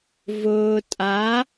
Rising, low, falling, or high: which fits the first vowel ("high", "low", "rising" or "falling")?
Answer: low